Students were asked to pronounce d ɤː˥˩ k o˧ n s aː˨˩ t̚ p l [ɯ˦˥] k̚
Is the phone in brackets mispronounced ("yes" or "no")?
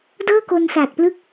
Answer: no